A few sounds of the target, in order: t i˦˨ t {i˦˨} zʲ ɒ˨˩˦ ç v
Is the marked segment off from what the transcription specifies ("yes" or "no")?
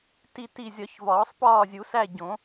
no